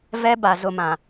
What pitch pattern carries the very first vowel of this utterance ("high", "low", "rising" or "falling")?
high